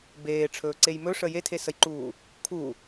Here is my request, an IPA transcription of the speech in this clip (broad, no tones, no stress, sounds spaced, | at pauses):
b eː ʈ͡ʂʰ ɵː ǀ e j m ɵ ʂ ə j e tʰ e s ə j ǃ uː | kʰ u